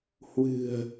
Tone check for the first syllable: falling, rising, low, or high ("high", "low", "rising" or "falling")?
low